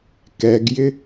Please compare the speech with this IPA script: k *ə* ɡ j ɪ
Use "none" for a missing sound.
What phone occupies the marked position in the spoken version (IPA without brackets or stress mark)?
ɛ